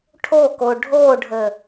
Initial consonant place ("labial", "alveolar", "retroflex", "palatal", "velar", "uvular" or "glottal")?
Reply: retroflex